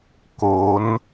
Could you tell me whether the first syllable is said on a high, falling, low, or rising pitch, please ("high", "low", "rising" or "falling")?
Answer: rising